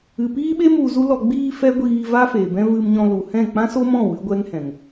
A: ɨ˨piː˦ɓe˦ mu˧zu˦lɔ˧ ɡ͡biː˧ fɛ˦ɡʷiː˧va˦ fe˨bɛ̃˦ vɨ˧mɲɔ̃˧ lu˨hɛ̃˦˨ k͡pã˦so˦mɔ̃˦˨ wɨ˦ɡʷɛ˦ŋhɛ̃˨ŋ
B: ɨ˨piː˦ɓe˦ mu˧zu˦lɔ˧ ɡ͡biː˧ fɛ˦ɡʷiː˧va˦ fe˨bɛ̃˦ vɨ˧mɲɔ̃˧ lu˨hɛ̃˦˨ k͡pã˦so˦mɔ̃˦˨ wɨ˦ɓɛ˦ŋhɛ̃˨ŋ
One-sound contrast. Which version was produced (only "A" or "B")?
A